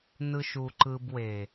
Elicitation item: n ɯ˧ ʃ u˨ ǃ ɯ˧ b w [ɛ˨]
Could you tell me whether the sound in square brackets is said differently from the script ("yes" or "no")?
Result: yes